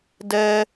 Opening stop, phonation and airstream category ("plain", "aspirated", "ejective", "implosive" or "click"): plain